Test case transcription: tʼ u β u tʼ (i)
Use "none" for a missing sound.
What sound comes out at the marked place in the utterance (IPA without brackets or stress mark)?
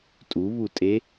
e